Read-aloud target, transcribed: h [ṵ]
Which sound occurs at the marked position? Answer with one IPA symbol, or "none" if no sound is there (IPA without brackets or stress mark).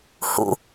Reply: ṵ